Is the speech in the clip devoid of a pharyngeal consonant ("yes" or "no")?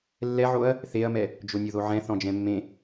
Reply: no